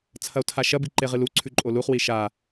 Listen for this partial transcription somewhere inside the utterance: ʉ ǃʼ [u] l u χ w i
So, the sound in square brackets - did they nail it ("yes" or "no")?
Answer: no